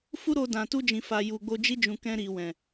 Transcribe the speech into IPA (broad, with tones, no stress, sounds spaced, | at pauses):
f u˦ ɾ o˧ d ã˨ t u˧ d͡ʒ ĩ˨ f a˨ j u˨ ɡ͡b o˧ d͡ʒ i˧ d͡ʒ ũ˨ k ɛ̃˧ ɾ i˨ w ɛ̃˨